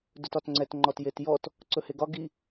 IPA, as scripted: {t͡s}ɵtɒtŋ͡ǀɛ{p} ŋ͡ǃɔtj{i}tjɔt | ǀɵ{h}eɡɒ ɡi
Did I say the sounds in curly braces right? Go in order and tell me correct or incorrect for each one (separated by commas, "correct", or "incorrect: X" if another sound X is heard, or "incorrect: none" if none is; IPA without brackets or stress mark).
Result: incorrect: d, incorrect: t, incorrect: e, correct